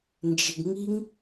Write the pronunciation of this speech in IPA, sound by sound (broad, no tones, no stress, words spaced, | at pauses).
nd͡ʒɪɡŋiŋ